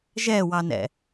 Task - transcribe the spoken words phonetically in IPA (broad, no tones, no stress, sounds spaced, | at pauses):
ʒ ɛ w ɑ n ɛ̰